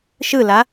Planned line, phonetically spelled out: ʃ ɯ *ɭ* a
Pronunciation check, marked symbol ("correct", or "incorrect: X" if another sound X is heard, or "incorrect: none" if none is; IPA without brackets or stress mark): incorrect: l